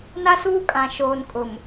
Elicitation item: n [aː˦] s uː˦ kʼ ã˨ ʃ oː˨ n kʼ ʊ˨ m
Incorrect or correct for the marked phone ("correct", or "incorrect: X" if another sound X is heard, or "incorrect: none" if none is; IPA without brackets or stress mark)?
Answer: incorrect: a˦